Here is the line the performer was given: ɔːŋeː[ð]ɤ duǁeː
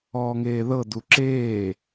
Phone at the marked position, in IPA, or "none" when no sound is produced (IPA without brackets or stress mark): ð